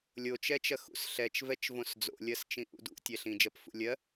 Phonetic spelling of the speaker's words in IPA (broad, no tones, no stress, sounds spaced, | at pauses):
lʲ o t͡ʃ ɛ t͡ʃ ɐ x ṵ s ɬ ɛ t͡ʃ v ɛ t͡ʃ v õ s d͡z o̰ lʲ ɜ s t͡ʃ ĩ ʔ ṵ d ṵ tʲ ɛ ɬ ĩ d͡ʒ ɜ p f ṵ lʲ ɜ